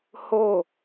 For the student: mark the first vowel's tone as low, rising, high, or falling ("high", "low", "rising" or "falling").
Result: falling